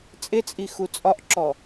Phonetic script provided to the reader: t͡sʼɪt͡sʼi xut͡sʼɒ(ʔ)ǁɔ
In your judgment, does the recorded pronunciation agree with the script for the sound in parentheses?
yes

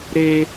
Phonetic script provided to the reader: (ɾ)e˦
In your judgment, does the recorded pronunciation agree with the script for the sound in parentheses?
yes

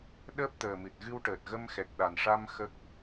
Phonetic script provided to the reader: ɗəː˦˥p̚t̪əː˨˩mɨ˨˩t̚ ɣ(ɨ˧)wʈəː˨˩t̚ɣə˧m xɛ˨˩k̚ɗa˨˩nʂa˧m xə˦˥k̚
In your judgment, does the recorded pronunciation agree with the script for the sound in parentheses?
yes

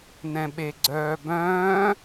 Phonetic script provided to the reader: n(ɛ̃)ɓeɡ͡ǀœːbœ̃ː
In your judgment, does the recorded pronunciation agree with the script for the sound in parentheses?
yes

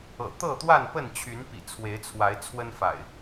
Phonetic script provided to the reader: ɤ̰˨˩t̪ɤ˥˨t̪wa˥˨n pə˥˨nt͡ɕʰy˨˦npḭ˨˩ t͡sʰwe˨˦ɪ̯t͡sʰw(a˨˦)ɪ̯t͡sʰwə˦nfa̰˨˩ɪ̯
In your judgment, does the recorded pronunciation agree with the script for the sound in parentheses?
yes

